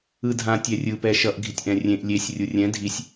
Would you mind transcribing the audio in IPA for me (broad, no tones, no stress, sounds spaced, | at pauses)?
ɯ dʱ ã tʲ ɛ rʲ ɯ p ɛ ʃ ʌ ʔ ɡʱ i tʲ ʔ ɛ̃ rʲ ẽ ʔ lʲ e sʲ rʲ u rʲ ɛ̃ dʱ i sʲ